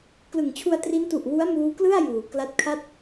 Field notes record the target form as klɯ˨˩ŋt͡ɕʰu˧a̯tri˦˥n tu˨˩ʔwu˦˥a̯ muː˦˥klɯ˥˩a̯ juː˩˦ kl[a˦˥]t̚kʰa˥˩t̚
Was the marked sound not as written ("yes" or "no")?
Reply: no